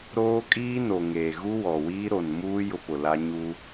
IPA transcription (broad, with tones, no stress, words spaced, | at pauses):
ɾoː˦kʼiː˦no˨ŋeː˨ ɣu˦wɔ˨wiː˦ ɾo˨nmuː˦ jʊ˦pʊ˨la˦ ɲu˦